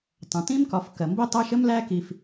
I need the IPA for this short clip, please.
tˤ ə̃˩ t ĩ˥ m k ɒ˨ f k ɜ˩ m b i˥ tˤ æ˥ ʃ ə˥ m l æ˦ k i˨ f

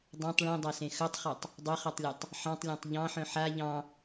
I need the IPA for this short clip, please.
dˤ ẽ tˤ ɭ ẽ dˤ a s ẽ x œ tˤ χ ɑ tˤ | dˤ ʏ χ ɐ tˤ lʲ ɐ tˤ | ħ ɑ̃ tˤ lʲ ã tˤ ʎ ɑ̃ ħ œ̃ ħ a ʎ ɑ̃

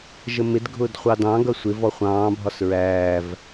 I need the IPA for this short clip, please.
ʒ ə m ɪ d ɡʱ ʊː d χʷ ɑ d ɑ̃ ɡ ʌ sʷ ɪ v ɔ χʷ ɑ̃ː bʱ ɒ s ɹ æː v

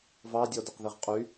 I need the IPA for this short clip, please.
v ɑ dʲ ɔ d ɛ q ð i ʁ qʼ y

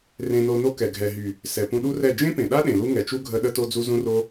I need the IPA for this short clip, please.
r ẽ˧ n o˧ n o˦ k ɛ˨ ɡʱ ɛ˨ ɦ y˨ | s ɛ˨ p ũ˧ ɗ u˦ r ɛ˦˨ d͡ʒ ẽ˦ p ẽ˨ ɗ a˦ ɗ ẽ˨ l u˦ ŋ ɛ˨ t͡ʃ u˦ ɡʱ ə˧ ɗ ə˦ t o˦ d͡z u˦ z ũ˦ r o˦

